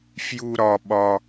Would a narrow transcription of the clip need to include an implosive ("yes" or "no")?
yes